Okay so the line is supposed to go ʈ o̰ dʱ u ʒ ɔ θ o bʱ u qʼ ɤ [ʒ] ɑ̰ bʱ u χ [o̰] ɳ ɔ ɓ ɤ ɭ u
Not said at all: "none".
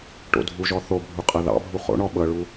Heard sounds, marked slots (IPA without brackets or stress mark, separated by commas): ð, o̰